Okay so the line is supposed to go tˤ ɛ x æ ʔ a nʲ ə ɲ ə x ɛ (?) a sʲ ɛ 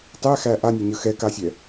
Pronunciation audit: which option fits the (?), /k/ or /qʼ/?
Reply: k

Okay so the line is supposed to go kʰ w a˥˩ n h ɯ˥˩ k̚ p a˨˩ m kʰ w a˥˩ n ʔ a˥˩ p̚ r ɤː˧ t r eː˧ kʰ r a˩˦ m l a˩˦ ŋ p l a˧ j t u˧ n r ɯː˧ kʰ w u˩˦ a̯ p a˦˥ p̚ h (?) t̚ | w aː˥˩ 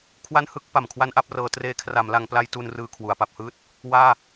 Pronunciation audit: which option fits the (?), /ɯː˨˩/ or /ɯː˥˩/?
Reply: ɯː˥˩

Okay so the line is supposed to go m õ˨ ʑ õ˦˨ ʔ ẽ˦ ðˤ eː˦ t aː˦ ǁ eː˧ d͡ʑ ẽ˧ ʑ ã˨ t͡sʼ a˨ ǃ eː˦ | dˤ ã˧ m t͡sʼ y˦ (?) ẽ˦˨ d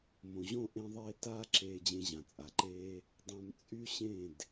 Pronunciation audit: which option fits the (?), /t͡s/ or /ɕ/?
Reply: ɕ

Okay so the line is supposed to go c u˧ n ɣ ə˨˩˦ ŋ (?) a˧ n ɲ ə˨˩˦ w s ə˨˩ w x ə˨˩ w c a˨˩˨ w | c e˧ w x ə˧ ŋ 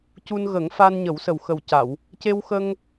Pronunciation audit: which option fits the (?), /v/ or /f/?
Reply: f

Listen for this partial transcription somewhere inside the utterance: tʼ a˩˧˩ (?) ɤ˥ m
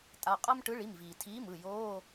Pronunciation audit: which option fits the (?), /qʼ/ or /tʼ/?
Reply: qʼ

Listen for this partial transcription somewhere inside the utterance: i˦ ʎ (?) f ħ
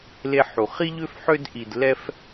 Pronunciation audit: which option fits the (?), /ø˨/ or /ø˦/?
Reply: ø˦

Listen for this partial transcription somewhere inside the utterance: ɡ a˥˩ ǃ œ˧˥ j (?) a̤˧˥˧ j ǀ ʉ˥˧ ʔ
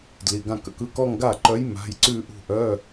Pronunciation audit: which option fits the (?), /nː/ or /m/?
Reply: m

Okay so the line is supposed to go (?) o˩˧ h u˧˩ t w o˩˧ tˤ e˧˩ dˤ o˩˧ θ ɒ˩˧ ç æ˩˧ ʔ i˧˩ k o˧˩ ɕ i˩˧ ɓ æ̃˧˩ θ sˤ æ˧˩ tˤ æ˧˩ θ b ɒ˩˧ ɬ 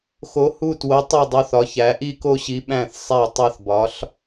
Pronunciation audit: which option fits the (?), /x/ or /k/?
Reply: x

